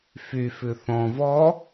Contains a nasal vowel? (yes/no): yes